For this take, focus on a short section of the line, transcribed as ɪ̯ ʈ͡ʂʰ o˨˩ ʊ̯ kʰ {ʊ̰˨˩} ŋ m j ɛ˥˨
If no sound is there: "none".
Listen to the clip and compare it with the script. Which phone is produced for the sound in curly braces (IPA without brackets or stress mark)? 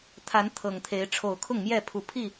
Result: ʊ˥˨